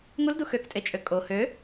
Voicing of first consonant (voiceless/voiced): voiced